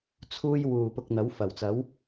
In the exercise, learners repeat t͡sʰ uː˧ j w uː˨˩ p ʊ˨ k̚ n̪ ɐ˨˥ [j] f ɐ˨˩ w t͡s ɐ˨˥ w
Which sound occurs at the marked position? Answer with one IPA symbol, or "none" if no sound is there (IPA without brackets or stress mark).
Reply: w